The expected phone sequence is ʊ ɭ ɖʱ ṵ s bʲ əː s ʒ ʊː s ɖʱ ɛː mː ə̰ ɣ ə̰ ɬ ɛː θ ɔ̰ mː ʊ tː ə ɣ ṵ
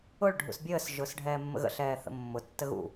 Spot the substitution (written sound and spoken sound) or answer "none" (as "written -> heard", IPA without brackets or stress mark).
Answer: ɔ̰ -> ə̰